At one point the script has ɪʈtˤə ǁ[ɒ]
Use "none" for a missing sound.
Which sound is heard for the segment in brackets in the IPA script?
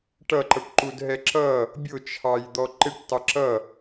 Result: ʌ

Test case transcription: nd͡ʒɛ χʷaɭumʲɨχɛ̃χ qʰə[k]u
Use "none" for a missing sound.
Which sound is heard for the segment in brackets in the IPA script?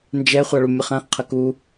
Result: k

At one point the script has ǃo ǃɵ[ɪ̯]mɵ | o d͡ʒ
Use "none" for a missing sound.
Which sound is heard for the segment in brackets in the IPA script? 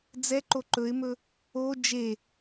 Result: ɪ̯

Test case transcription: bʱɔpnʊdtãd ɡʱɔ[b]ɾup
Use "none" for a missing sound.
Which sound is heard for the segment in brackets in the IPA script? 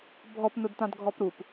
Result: p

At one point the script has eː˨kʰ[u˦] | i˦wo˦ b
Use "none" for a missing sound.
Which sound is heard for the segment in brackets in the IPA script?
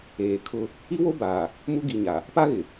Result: ʊ˦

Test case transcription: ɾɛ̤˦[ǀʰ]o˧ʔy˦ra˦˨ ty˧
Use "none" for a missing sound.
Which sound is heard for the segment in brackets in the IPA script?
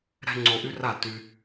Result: ŋ͡ǀ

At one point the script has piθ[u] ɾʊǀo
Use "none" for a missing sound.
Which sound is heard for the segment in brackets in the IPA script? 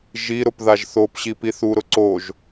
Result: u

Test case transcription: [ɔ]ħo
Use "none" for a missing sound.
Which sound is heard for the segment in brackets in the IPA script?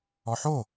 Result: ɔ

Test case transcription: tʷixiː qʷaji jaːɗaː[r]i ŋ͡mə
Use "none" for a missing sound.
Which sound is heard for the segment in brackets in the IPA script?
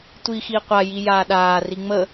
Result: r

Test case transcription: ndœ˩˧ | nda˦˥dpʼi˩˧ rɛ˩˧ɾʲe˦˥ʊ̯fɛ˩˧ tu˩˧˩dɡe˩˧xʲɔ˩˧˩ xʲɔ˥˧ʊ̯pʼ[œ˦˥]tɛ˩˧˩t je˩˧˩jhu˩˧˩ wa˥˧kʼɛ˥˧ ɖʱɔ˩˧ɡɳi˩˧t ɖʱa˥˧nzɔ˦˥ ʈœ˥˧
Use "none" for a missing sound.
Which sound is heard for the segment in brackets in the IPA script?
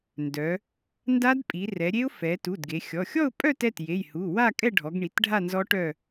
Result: œ˥˧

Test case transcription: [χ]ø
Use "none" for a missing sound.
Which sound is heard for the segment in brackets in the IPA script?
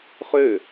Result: χ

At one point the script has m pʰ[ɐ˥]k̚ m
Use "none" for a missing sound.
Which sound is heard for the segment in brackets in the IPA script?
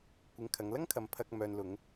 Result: ɐ˧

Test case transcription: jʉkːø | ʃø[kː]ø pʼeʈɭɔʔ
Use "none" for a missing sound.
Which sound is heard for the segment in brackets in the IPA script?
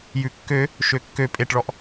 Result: kː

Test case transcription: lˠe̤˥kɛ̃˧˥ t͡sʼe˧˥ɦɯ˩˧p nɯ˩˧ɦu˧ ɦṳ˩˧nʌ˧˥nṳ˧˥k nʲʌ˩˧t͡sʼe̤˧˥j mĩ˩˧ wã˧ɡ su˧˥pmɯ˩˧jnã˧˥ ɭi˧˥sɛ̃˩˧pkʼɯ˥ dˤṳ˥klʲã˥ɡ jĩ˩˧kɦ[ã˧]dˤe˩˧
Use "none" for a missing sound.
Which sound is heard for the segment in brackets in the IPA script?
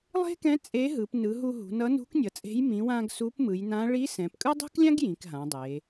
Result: ã˩˧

